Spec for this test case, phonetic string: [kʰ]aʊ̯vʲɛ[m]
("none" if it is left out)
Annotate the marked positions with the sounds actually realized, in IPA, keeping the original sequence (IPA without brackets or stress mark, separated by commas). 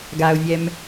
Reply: ɡ, m